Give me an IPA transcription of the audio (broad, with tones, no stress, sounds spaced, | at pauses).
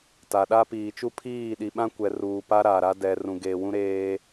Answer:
t a˨ ɗ a˦ p iː˨ t͡ʃ u˦ pʰ iː˦˨ ɗ i˨ ɓ ã˦ kʷ ɛ˨ r uː˨ p a˦ ɾ a˨ ɾ a˦ d ɛ˨ r ũ˨ ɡ eː˨ w ũ˦ ɾ eː˦